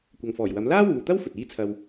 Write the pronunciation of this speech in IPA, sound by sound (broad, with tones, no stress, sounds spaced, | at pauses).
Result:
kʷ ɐ˨ ŋ f ɔː˨˩ j w ɐ˨˥ m l aː˥ w uː˨ t̪ ɐ˥ w f ɵ˨ t̚ iː˥ t͡sʰ ɐ˧ w